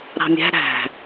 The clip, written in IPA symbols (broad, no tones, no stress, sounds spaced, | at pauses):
ɾ ɑ̤ mʲ æ̤ ɾ æ̤